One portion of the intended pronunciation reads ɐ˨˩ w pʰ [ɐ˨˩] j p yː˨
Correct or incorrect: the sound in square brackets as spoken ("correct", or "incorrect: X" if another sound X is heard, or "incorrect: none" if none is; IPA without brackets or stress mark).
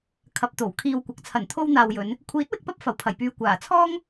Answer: correct